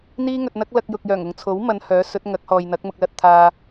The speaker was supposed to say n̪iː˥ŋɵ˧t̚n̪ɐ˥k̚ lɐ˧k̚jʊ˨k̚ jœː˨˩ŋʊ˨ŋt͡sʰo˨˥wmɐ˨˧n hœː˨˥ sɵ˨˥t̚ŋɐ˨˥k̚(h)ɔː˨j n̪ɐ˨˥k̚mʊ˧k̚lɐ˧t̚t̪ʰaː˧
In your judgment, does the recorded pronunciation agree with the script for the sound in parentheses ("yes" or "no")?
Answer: yes